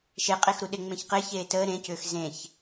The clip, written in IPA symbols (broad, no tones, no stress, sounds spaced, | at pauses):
ʃ e qʼ e x ɾ u ɗ e ŋ͡m ẽ ç q e ç eː t əː ɾ ẽ c ʏː x z ẽ ç